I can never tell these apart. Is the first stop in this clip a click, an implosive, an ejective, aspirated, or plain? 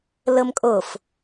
ejective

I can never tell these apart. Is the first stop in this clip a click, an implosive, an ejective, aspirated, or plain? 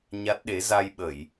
plain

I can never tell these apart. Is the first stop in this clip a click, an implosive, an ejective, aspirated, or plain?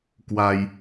plain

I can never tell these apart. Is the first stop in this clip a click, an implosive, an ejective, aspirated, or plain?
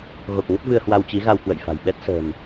plain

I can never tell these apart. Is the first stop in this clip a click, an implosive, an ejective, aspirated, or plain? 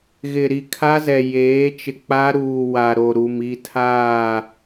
aspirated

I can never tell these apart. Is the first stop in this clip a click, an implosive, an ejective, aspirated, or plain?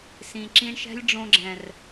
click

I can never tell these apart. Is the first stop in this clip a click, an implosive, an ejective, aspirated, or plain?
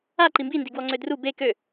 click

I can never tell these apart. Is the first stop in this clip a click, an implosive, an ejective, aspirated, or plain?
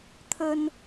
aspirated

